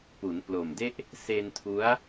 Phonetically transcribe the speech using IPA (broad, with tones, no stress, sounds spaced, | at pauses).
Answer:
p u˩˦ n p l o˨˩ m d e˥˩ ʔ | s e˧ n tʰ u˦˥ a̯